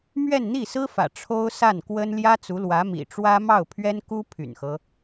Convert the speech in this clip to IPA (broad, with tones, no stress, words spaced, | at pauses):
mɥɛ˥˧nn̪i˥˩sɹ̩˥fä̰˨˩ ʈ͡ʂʰo˥ʊ̯sa˥˩nkwə˥n ljä˥t͡su˧˥lwä˧˥ mḭ˨˩ʈ͡ʂwä˥mɑ˥˩ʊ̯ pʰɥɛ˥nku˥ pʰy̰˨˩nxɤ˦